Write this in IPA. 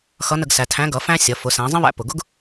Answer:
xʌ˧˥nə˧ɡ sæ˩˧tʰæ̃˧˥ɡʌ˩˧ fæ̃˥ sʲʌ˩˧ fʊ˩˧ sæ̃˩˧zˤə̃˥βæ̰˧ pʊ˩ɡʊ˥ɡ

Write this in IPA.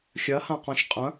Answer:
xʲɐhãqɔ̃ʃ qʼɐ̃

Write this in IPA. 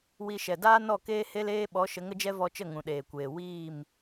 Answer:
wi˧ ʃɛ˨daː˦ nɔ˦˨keː˦ he˦leː˦ ɓɔ˨˦ʃə˨˦ŋ ə˨˦d͡ʒɛ˦vɔ˧t͡ʃə˦˨ ŋũ˨ɗeː˨kʷeː˨ wiː˦˨m

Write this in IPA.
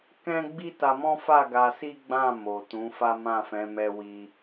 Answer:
kɛ̃˦ɡ͡bi˦ta˧mɔ̃˦ fa˦˨ ɡa˧si˦ɡ͡bã˦˨ mo˨ tũ˨˦fa˦ mã˦˨fɛ̃˨˦mɛ˧ wi˧

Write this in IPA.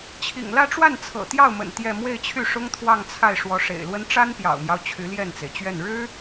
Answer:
t͡ɕʰḭ˨˩ŋlä˥˧ʈ͡ʂwa˥˩n t͡sʰɤ̰˨˩t̪jɑ˥˩ʊ̯mə̰˨˩n t̪jɛ˥˧ mwe˥˧ɪ̯t͡ɕʰy˥˩ʂʊ˥ŋ t̪ʰwɑ˥˧ŋt͡sʰa˥˩ɪ̯ ʂwɔ˧˥ʂḛ˨˩ɪ̯lwə˥n ʈ͡ʂa˥npjɑ̰˨˩ʊ̯mjɑ˦ʊ̯ t͡ɕʰy˧˥ljɛ˥˩nt͡se˩ɪ̯t͡ɕɥɛ˥˩n ɻɻ̩˥

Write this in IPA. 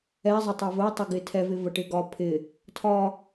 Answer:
ɛ zˤɪtˤɛvə tˤɪɡɪtʰɛ vɪvəʈɪɡɒ pʰɪ | tʰɒ

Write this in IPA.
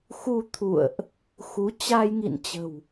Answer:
xu˧t̪ʰṵ˧˨ə̯ʔ | xu˨˦t͡ɕa˧jŋḭ˧˨nt͡ɕə̤˨˩w

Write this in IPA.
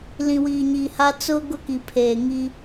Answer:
lĩ˨wiː˨ɲi˨ha˦ t͡sʊ˦ ɡʊ˦ki˨ pʰeː˨ŋi˦

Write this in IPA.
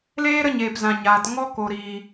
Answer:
leː˦ ɾə˦ɲeː˨pzã˨ ɲaː˨t ŋɔ˦ko˨ɾiː˨

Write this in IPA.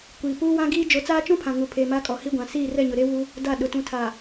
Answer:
kʷiː˨puː˦ wã˦ɡiː˦ d͡ʒo˨˦t͡saː˦t͡ʃũ˦pʰã˨ ŋu˨pʰeː˨ ma˦kʼɔ˨ hi˦ɡʷã˨ siː˦˨rɛ˦˨ɲʊ˨ ɾe˦wuː˦ | da˦˨ɗʊ˨ tũ˨tʰaː˨

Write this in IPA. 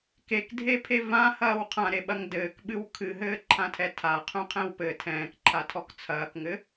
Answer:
kekdʱepʰe vãhɐːw qʰãɾeɓɐŋ dɘːkɓɨw kʰɨɦɘːǃʰãtʰɛ tʰaqʰũqʰɛ̃w pɘ tʰɛ̃ːkǃʰatʰɔk t͡sʰɐːkŋɘ

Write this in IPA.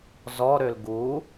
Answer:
zɔɾøl ɡu

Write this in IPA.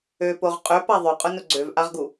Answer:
øpoʁ qʼøpa ðˤœqʼʊnʊ ɡ͡ǀøvʔaʁɡu

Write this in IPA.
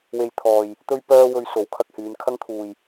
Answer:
we˧jt̪ʰɔː˨j | t̪ɵ˥ɥpœː˥wɵ˧ɥ so˨˥w kʰɐ˧k̚hyː˨˧nkʰɐ˥ŋt̪ʰuː˨j

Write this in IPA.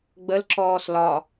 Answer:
ɡ͡bəlǁɔːs lɒ

